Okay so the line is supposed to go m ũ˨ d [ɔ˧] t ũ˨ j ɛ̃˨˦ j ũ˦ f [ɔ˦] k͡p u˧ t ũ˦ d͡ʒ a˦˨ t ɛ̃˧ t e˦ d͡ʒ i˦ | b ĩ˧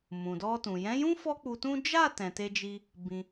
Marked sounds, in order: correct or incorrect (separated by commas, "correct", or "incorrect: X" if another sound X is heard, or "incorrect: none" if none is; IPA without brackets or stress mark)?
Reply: correct, correct